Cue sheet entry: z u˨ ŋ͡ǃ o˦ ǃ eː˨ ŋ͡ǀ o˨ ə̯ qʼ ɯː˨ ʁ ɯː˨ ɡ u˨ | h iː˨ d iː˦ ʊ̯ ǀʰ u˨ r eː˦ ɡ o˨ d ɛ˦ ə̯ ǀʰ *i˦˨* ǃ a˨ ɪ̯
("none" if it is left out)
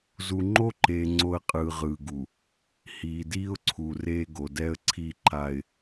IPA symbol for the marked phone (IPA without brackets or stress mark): i˦˨